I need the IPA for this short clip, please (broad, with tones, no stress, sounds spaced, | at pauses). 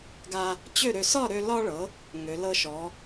ɡ a˧ | t͡ɕ ø˥˨ ɾ ø˧ s ɒ˥˨ ɾ ø˧ l ɒ˧ ɭ ɤ˩˧ | ŋ ø˩˧ l ɤ˧ ʃ ɔ˩˧